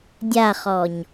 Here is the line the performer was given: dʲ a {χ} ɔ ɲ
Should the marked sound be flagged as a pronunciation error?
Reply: no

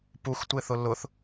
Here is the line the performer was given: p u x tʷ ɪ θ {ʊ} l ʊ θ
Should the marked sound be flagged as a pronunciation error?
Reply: no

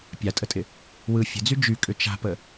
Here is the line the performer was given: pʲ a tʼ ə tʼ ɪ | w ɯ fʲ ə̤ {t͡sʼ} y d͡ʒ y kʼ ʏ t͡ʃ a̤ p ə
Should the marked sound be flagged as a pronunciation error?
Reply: yes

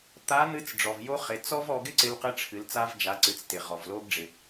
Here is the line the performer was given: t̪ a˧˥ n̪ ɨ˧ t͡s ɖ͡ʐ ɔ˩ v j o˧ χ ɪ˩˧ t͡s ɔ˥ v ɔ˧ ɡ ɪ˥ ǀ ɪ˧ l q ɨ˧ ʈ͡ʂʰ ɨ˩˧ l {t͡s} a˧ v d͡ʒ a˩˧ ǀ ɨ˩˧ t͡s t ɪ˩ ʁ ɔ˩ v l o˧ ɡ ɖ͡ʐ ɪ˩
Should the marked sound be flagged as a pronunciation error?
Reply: no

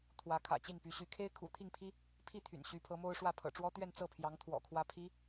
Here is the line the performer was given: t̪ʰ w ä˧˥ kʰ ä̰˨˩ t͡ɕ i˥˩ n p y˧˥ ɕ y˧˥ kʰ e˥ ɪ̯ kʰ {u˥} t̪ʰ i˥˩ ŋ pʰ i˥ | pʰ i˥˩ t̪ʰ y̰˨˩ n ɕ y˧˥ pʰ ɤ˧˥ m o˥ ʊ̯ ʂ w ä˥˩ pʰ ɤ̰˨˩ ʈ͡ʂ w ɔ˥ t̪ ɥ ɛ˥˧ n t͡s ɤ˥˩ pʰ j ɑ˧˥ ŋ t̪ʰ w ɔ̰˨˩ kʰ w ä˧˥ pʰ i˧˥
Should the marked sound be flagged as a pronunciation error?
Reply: yes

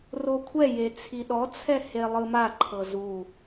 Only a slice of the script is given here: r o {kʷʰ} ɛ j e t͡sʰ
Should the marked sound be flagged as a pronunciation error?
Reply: no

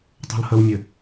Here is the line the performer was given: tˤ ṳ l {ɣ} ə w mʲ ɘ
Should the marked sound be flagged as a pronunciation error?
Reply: yes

